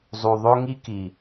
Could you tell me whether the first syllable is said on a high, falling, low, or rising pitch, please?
low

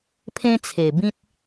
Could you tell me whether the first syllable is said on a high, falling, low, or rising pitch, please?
high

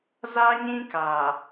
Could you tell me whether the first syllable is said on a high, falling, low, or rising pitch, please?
high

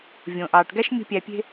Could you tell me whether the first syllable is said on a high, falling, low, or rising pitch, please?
low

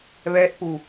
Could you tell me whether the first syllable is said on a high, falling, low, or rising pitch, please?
rising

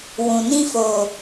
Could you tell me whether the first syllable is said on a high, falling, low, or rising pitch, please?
low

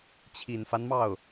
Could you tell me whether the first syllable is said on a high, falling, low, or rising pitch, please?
low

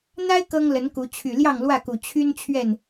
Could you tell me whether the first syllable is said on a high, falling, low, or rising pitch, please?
high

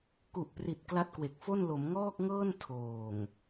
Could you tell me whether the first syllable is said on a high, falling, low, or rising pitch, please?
low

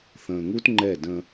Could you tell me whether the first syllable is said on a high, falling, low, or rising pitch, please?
low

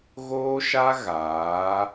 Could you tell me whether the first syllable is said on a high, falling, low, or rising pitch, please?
high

